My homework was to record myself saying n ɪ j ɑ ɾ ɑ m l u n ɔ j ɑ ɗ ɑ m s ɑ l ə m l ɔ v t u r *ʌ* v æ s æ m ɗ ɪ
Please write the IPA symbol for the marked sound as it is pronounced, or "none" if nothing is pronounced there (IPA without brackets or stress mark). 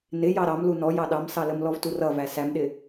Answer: ʌ